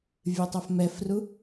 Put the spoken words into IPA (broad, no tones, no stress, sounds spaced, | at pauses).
vʲ ɨ tˤ ɐ f m ɛ f r u